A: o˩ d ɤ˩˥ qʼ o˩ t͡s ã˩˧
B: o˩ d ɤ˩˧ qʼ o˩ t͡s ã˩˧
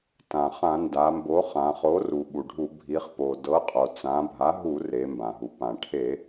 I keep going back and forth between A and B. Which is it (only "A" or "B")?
A